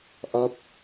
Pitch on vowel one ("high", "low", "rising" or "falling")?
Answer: falling